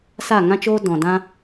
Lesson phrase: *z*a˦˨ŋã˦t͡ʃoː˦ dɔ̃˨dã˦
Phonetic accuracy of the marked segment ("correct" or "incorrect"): incorrect